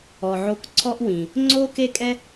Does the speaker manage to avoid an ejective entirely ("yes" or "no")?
no